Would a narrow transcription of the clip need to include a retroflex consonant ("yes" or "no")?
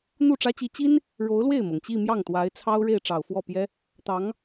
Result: yes